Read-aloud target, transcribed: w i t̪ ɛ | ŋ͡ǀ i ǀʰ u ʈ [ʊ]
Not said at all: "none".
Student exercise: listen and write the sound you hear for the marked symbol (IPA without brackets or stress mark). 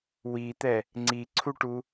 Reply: u